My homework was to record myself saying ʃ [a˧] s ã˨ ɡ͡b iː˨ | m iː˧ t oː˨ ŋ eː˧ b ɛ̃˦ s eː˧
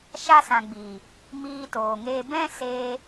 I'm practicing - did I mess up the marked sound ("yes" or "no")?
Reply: no